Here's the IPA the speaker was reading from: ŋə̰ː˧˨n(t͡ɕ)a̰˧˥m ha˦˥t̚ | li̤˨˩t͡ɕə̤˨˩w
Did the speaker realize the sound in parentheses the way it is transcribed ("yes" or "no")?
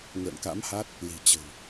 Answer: no